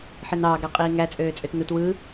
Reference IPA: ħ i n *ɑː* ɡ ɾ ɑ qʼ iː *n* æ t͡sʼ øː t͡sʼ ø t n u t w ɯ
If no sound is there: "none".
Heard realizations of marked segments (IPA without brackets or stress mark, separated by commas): ɑː, ŋ